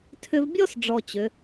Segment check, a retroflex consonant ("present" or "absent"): present